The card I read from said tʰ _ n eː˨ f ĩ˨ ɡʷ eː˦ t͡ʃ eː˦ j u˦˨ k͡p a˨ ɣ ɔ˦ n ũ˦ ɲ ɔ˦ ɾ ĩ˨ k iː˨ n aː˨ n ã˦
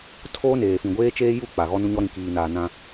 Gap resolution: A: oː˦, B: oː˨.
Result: A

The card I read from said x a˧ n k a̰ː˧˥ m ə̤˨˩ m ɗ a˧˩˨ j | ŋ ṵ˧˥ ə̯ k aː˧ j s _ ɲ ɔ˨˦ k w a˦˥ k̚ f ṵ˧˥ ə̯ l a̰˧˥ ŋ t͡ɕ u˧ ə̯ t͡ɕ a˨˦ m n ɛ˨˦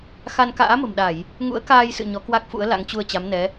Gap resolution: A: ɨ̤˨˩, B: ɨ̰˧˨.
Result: B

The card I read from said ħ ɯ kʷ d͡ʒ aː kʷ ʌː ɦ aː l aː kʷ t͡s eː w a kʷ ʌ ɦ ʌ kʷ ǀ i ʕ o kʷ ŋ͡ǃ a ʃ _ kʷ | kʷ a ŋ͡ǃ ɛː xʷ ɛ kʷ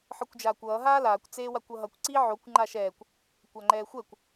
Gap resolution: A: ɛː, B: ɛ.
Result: A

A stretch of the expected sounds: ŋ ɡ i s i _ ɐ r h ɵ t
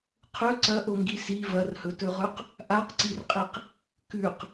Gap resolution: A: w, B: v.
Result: B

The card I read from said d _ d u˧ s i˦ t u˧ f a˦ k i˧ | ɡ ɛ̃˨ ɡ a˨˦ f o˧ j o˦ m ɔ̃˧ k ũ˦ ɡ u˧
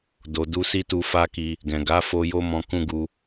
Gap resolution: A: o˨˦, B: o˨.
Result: B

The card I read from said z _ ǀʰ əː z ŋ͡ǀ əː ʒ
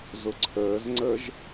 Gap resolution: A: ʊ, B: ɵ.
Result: A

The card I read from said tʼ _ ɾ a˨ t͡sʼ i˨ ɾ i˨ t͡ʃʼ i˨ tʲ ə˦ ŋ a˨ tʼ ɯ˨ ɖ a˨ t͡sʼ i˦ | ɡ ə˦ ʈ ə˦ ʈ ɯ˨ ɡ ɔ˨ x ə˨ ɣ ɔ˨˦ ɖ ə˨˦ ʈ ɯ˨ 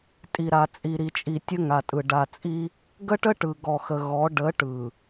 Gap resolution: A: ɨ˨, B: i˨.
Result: B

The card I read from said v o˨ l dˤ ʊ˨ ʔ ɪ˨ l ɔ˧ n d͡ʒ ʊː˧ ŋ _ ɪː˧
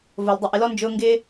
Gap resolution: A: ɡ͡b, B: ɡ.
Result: B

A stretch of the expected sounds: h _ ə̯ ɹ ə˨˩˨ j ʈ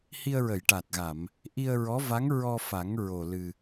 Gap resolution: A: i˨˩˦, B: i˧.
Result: B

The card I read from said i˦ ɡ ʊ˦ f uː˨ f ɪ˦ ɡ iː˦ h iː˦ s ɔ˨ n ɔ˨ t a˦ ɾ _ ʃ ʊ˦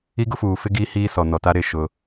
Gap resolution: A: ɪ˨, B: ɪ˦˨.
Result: B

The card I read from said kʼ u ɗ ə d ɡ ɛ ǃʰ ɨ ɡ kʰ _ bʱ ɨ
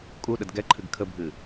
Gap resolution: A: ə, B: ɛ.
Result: A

